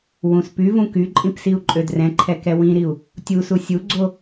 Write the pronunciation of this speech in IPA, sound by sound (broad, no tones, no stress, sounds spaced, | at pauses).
w ũ s p y v ũ k y ǃʼ ĩ p s i u̯ ǃʼ ø d r ɛ̃ ǃʰ ɛ k ɛ w ĩ ɾ i u̯ | tʲ u s u sʲ u ɡ͡ǀ o